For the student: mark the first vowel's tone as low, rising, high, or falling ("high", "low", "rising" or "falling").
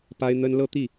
high